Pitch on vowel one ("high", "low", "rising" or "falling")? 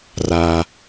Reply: low